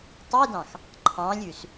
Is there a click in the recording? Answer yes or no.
yes